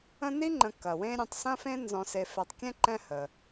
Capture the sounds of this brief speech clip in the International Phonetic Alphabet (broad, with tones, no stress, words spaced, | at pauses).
ə̃˦ni˥ŋ͡ǃə̃˨ kɐ˩wẽ˦ ɾʲə̃˨tˤsɐ̃˥fẽ˥ nzɔ̃˨se˨ fɛ˨tˤ kʲɛ̃˥ǃɛ̃˦ hə˩